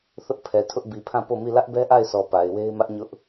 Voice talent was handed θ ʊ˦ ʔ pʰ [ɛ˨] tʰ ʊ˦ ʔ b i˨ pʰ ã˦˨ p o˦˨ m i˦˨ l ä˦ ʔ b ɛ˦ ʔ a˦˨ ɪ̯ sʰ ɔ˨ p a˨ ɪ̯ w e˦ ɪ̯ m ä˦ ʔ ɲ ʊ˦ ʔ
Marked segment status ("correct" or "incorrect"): correct